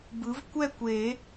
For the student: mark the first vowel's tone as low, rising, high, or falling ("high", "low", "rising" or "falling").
rising